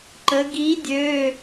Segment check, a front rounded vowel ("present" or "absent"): present